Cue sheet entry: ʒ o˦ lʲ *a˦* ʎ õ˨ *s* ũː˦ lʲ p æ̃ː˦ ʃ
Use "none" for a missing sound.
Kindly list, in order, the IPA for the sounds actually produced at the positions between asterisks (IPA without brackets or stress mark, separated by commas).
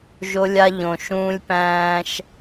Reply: a˦, ʃ